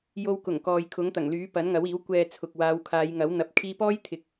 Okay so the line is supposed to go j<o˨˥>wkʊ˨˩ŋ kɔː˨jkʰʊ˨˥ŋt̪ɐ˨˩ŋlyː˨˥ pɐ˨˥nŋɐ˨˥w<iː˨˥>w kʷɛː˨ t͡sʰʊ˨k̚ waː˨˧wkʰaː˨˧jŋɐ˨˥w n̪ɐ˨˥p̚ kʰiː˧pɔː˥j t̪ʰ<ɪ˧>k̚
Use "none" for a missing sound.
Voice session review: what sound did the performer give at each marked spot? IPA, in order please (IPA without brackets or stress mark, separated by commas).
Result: o˧, iː˨˥, ɪ˨˥